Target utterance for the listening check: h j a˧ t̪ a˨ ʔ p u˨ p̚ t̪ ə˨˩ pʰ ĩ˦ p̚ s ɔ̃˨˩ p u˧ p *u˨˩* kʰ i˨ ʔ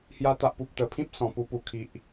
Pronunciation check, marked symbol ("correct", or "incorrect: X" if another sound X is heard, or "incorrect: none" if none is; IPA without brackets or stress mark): correct